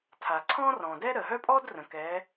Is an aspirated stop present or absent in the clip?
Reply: present